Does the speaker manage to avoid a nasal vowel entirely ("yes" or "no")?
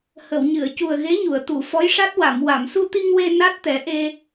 yes